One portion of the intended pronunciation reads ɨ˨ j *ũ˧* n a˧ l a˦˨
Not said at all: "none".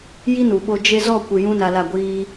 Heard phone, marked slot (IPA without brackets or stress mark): ũ˧